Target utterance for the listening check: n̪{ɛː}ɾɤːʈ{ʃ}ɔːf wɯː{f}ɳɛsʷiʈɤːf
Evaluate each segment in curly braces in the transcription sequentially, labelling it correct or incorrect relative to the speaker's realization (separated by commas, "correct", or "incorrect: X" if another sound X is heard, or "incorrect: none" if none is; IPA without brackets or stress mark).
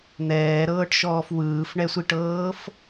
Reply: correct, correct, correct